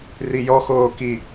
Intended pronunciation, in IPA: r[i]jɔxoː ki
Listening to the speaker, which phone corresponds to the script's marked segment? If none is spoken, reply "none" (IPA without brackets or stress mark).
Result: i